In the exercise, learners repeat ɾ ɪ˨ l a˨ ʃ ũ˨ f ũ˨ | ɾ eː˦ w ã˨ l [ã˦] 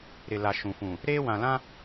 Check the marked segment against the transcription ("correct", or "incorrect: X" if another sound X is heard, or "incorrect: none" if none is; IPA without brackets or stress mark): correct